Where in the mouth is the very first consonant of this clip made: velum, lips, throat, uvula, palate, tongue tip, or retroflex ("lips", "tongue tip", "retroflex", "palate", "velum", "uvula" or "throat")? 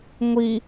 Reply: velum